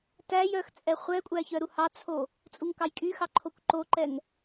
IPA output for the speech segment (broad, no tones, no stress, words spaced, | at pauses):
tæjœxt͡sʼɛ χʷɛkʷʼæçœ ɾuhɑt͡sʰo | t͡sʼuŋkɑjkʼyxɑ ǃʰokʷǃoǃɛŋ